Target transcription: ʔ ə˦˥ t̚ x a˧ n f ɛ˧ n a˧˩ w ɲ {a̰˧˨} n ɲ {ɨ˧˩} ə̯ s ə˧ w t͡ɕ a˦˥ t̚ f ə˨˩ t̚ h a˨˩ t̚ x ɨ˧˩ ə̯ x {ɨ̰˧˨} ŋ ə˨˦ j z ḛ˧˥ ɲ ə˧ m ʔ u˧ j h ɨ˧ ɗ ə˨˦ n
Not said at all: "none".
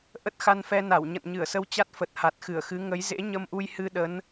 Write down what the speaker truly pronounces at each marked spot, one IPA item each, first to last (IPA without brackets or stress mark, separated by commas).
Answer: ə̰˧˨, ɨ˧˩, ɨ˨˦